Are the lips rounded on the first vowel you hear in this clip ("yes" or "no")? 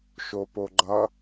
yes